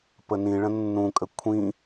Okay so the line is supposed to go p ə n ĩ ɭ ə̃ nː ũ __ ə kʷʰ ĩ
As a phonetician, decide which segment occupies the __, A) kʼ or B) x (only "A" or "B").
A